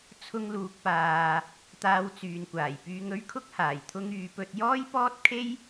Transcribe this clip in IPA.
t͡sʰ ʊ˧ ŋ l uː˨ k̚ p aː˨ | t̪ aː˧ w t͡s yː˨ n kʷ aː˨˩ j p yː˧ ŋ ɵ˥ ɥ kʰ ʊ˥ k̚ h aː˨˩ j t̪ʰ ʊ˧ ŋ yː˨ p ɵ˧ t̚ j ɔː˥ j p ɔː˥ t̚ kʰ e˥ j

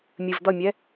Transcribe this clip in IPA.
mʲ ɨ v d̪ ʌ mʲ ɛ

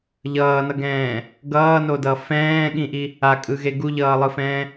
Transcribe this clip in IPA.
ʎ ʌː n ʌ ɡ ɛ̃ː | ɡ ʌː n o d ʌ f ɛ̃ː ɠ ĩ ʔ i | a kʼ ɯ ɣ e ɡ u ʎ ʌː lˠ ɯ f ɛ̃ː

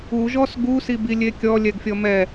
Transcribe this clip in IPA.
u ʒ ɔ s ɡ u s i b i lʲ e kʲ ɔ lʲ ɛ ɡ fʲ ɔ m ɛ

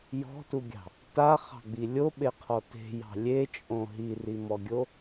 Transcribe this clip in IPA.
j ɔ̤ t u ɡʲ ɑ̤ | t a χ ɑ̤ ɡ͡b i lʲ o ɓ e qʰ ɔ t e̤ j ɑ̤ lʲ e t͡ʃʼ õ ɦ i r i m ɔ ɡʲ o

